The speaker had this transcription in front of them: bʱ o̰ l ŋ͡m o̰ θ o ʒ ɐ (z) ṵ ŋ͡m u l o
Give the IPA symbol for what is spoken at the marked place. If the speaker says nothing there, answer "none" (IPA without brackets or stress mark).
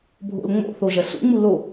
s